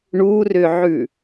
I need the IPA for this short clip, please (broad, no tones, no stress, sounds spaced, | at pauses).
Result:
ɳ u r ʏ ʕ ʉ